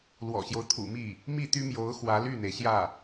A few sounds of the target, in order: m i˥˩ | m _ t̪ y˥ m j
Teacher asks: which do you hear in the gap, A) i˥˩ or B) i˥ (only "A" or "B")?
A